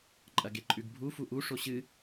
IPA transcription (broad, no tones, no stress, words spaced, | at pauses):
ǃʼɐɡeǃʼʉɡbʱu fuʔu ʂoɕɨ